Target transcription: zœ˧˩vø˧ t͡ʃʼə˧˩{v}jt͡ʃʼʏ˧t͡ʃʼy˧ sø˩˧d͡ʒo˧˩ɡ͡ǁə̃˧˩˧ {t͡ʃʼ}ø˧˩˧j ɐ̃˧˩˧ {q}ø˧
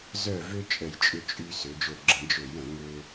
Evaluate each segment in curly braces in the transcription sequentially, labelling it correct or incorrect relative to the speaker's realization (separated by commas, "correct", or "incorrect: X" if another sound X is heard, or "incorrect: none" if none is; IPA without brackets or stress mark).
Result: incorrect: none, incorrect: d͡ʒ, incorrect: ŋ